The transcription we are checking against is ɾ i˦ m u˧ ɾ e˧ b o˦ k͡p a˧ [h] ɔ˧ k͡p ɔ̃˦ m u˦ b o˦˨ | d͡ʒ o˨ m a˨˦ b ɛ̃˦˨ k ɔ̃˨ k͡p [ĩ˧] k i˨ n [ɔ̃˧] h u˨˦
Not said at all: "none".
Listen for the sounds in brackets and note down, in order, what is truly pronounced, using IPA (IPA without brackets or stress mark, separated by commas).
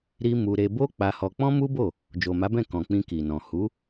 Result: h, ĩ˧, ɔ̃˨